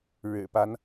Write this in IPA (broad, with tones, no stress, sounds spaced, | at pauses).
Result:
ɻ ɻ̩˨˩ p a˦ n